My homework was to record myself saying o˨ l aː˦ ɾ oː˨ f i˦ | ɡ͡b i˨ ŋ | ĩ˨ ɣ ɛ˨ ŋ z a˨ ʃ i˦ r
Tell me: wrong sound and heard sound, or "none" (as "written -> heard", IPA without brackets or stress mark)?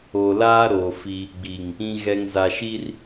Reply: none